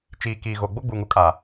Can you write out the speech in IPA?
t͡ʃ iː˨ k iː˨ ɣ o˨ ɡ͡b o˦ ɡ͡b uː˨ ŋ u˦ kʼ aː˨

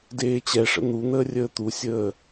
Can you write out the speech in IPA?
d eː t͡ɕ ɛ ʂ ə̰ n̪ u n̪ əː rʲ əː t̪ u sʲ əː

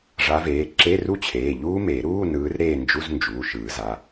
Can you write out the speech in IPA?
ʐ a˨˦ v eː˩˧˩ ǁ e˧˥˧ r u˦˥ t͡ɕʰ eː˩˧˩ ʎ uː˦˥ m e˨˩˦ ɾ uː˧˥˧ n ɯː˨˦ r ɾ eː˦˨ n d͡ʒ u˧˥˧ z n d͡ʒ uː˩˧˩ ʃ ɯː˨˩˦ z a˩˧˩

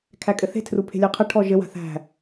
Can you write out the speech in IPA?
kʰ æ kʼ ɘ θ e̤ tʰ r u pʰ e̤ lʲ ɜ qʰ ɘ ʈʰ ɔ ʒ ɘ w a̤ θ æ̤

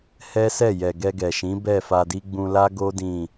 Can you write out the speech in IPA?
h ɛ˦ s ɛ˦˨ j ɛ˨ ɡ ɛ˧ ɡ ɛ˨ ʃ ĩ˨˦ b ɛ˦˨ f a˧ d i˦ ɡ͡b ũ˧ l a˦ ɡ o˦ d ĩ˦˨

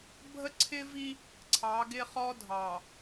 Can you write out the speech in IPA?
bʱ ə˦ ǀʰ ɪ˦ v i˦ | ǀʰ ɑ˨˦ ɡ ɪ˦ χ ɔ˦ dʱ ɑ˨

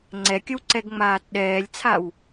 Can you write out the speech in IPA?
ŋ͡ǀ ɛ kʲ ə w ǀ ɛ ɡ ŋ͡m aː t ɗ ɛː lʲ t͡sʰ a w

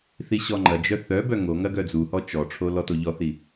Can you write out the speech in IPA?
θ i ɕ ɔ ŋ͡ǃ ɐ d͡ʒ œ θ œ b œ ŋ o ŋ ɐ ɡ œ d͡z u h ɔ t͡ʃ ɔ ʈ͡ʂʰ o l ɔ t o ʎ ɔ θ i

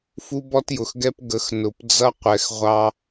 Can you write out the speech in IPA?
f u˦ b ɔ˦ t j ʊ˨ x ɡ ɛ˦ p ɡ ə˨˦ x n ʊ˨ p d͡z ʌ˦ qʷ ɛ˨ x ʁʷ ɑ˦

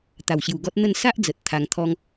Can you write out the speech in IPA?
t̪ a˨˩ w ɕ j u˨˩ ɡ ɔ˦ t̚ n̪ ə˥˧ n s a˦ ʔ d͡z ə˨ t̚ t̪ʰ a˧ ŋ t̪ʰ ɔ˦ ŋ

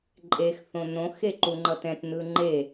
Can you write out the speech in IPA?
ǃʼ e x θ õ n õ x e ǃ u ŋ͡ǃ ʌ t ɛ̃ t n ɯ ŋ͡ǃ e

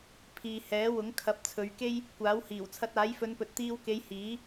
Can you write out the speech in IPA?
pʰ iː˨ h ɛː˨˥ w ʊ˨˥ ŋ kʰ ɐ˨˥ p̚ t͡sʰ ɵ˨˧ ɥ k e˥ j | kʷ aː˨˥ w h iː˨˩ w t͡sʰ ɐ˧ t̚ aː˨˥ j f ɵ˨˧ n p ɵ˨ t̚ t̪ iː˧ w k e˨˧ j h iː˨˥

